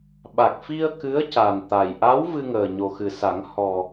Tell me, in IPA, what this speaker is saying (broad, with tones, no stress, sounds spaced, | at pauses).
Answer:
ɓ a˨˩ k̚ f i˧ ə̯ k ɨ˧˥ ə̯ c a˨˩ n t̪ a˨˩ j ʔ a˧˥ w v ɨ˧ ŋ əː˨˩ ɲ o˨˩ x ɨ˨˩ s a˨˩˦ ŋ h ɔ˨˩